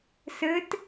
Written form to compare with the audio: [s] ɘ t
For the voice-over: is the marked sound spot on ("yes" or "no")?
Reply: yes